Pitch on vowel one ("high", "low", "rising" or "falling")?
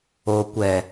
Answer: low